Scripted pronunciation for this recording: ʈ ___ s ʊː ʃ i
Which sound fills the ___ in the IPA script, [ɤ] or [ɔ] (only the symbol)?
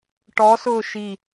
ɔ